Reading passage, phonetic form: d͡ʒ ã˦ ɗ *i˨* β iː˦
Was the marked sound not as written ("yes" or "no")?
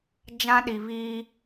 no